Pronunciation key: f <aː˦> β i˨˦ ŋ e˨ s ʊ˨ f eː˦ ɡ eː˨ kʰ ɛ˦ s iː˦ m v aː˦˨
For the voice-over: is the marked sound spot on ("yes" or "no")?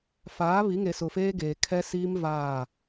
no